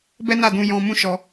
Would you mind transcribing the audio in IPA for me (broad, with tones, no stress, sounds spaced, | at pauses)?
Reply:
b ɛ˦ n a˦˨ d ũ˧ j ɔ̃˧ m ũ˦ ʃ ɔ˧